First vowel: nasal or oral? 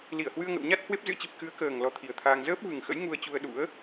oral